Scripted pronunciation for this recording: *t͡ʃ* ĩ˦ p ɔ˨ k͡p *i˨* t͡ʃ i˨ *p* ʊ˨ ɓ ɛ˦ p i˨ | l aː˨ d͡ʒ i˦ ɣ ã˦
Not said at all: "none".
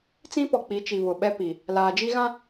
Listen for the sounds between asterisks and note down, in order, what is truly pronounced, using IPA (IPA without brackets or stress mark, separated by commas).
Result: t͡s, i˨˦, β